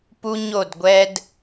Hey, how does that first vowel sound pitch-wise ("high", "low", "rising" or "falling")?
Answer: high